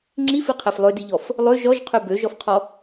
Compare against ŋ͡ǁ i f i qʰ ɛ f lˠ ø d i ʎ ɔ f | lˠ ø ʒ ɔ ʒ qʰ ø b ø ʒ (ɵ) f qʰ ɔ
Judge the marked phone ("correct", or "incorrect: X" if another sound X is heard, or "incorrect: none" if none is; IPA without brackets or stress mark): incorrect: ɔ